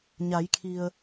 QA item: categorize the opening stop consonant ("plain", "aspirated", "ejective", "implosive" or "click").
aspirated